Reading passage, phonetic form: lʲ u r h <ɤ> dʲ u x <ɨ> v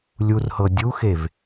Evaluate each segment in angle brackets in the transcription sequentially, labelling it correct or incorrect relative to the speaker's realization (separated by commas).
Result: correct, incorrect